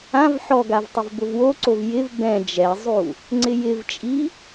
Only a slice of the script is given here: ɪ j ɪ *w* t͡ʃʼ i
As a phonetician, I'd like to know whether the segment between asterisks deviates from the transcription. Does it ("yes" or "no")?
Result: yes